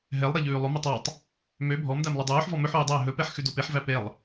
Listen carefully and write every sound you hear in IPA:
ɦ ɛ lˠ ɾ e ʎ ʉː lˠ ɵ m ɛ tˤ ɑ tˤ | m ø bʱ ɔ m d æ m lˠ œ dˤ œː ħ v ɔ m ɵ ħ ʉː dˤ æ ɦ ɵ p ɛ ħ x ʉ d o p e ħ v æ p e lˠ

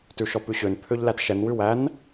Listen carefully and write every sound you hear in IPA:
t ʉ ʃ ɔ p ʉ ɕ ø n pʰ ø ʎ l æ t ʃ ɛ n w ʉ w æ n

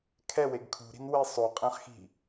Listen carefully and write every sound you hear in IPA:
kʰ ɛ w e ɡ kʰ ṳ ɾ i̤ n w e sˤ o qʼ ɛ̃ χ x i̤

